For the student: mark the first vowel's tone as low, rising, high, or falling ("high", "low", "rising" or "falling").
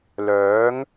rising